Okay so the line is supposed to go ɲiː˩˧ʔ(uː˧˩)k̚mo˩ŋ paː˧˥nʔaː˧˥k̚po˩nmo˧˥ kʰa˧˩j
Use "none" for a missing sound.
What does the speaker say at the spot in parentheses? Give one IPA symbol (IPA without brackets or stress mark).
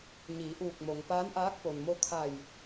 uː˧˩